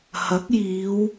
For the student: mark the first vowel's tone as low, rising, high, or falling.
rising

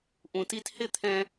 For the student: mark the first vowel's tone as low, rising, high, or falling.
low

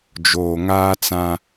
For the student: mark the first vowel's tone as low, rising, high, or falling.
low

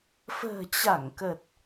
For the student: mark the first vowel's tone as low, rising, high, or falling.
low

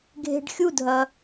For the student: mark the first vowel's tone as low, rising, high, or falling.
low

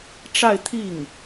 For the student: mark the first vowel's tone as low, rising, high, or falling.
falling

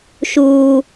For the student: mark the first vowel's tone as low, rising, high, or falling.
high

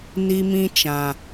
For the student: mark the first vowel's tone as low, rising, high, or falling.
high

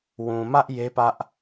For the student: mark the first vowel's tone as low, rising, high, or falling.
low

